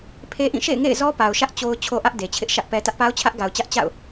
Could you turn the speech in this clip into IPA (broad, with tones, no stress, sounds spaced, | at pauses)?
pʰ e˦ ʔ ĩ˦˨ ʃ ḛ˦˨ ɪ̯ ŋ ḛ˦˨ ɪ̯ z ɔ˦ p a˨ ʊ̯ ʃ ä˦ ʔ t͡ɕ o˨ ʊ̯ t͡ɕʰ o˦ ʔ ä˦ ʔ d e˨ t͡ɕʰ ɪ˦ ʔ ʃ ä˦ ʔ p ɛ˨ t ä˦ ʔ p a˦ ʊ̯ t͡ɕʰ ä˦ ʔ ɡ a˨ ʊ̯ t͡ɕ ä˦ ʔ t͡ɕ a̰˦˨ ʊ̯